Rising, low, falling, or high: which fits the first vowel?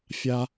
high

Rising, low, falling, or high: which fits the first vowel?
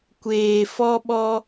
low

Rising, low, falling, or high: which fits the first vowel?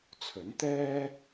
rising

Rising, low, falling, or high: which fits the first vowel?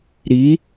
rising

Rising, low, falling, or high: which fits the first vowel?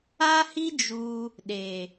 high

